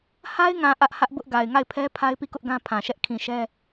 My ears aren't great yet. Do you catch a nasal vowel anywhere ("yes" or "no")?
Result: yes